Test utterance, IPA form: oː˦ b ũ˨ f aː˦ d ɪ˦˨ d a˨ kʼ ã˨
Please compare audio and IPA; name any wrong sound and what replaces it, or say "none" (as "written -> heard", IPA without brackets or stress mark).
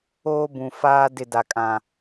none